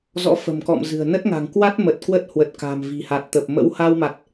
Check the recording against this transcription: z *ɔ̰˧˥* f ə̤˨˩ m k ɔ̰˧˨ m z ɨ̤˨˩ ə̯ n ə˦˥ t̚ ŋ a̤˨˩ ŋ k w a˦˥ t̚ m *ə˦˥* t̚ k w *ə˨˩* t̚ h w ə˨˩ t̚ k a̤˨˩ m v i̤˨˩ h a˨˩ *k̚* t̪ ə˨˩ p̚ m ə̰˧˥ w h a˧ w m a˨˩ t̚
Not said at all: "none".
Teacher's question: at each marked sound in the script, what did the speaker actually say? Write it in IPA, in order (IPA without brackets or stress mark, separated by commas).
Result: ɔ̰˧˥, ə˨˩, ə˦˥, t̚